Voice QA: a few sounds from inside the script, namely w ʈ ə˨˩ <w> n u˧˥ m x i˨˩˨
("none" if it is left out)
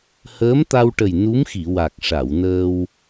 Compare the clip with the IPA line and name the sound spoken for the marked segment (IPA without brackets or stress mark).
j